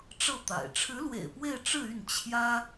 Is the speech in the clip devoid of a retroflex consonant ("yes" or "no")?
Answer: no